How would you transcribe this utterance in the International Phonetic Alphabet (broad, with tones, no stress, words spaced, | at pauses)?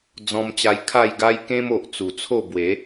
d͡zɔ̃˧mt͡ɕa˧j kʰa˥˧jɡa˦j kẽ˦mo˨ʔt͡su˨˩t͡sʰo˥˧ bwe˨˦